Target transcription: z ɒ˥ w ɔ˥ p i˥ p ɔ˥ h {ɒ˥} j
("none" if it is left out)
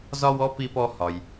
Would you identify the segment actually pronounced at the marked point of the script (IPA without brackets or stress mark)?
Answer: ɒ˧